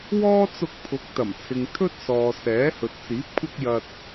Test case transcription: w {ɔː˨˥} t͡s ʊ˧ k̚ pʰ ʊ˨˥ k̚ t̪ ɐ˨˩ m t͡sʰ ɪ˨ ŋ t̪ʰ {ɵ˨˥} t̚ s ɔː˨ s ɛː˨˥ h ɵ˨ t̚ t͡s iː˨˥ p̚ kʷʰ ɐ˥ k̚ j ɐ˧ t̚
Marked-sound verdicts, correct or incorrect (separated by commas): incorrect, incorrect